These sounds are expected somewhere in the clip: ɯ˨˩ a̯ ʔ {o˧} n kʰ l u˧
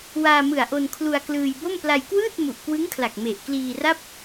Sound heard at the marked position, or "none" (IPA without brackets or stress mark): o˧